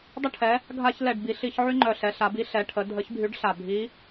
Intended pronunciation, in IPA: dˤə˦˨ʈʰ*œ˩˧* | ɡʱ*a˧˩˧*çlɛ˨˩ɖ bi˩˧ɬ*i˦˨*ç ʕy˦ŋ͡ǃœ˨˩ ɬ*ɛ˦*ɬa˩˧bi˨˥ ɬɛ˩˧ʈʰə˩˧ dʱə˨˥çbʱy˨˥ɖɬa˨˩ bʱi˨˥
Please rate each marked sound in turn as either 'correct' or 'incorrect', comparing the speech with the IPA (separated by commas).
incorrect, correct, incorrect, incorrect